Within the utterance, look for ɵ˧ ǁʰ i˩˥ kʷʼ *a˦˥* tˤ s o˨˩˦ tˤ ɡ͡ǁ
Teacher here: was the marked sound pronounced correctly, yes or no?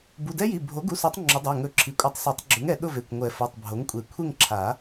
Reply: no